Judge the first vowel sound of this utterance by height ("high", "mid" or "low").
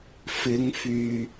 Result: high